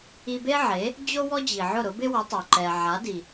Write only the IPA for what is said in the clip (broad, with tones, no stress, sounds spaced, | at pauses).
i˧ b e˥ ʕ e˩˥ | d͡ʑ o˥ w ɔ˥ d͡ʑ i˩ ʕ ʊ˥˩ ɾ ʊ˩˥ b ɪ˥ w ʊ˩˥ tˤ o˩ ǃ ɛ˩ ʕ a˩˥ d i˩